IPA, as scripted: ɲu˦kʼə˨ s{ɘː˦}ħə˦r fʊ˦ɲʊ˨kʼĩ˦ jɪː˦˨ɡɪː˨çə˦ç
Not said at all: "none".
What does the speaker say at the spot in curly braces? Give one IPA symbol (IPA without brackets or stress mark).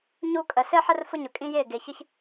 ɘː˦